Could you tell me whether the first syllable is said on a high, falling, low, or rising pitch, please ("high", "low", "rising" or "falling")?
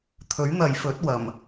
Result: rising